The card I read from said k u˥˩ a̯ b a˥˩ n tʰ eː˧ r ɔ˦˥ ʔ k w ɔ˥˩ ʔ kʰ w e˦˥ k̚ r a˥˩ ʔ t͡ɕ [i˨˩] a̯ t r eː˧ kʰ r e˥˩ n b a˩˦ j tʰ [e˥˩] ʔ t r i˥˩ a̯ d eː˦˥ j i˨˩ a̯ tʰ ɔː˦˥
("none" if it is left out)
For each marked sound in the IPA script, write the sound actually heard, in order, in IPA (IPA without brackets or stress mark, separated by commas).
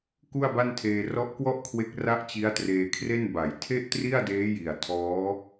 i˦˥, e˥˩